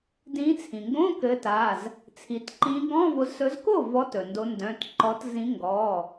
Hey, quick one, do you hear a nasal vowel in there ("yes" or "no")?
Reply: yes